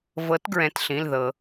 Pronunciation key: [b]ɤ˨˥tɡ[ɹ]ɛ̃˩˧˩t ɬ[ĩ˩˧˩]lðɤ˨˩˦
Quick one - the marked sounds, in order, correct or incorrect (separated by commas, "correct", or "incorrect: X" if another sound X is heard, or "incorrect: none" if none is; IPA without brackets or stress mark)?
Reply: incorrect: v, correct, correct